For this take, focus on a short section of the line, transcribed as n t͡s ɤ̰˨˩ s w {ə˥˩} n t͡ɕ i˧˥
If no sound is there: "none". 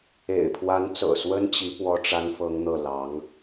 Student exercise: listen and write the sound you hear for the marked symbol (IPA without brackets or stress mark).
ə˥